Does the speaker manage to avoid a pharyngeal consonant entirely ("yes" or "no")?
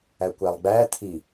yes